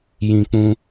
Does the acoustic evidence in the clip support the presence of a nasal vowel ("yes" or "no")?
yes